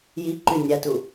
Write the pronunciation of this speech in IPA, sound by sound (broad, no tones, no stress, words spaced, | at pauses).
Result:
ji ǃynʲatu